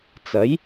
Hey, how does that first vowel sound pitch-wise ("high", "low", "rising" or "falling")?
rising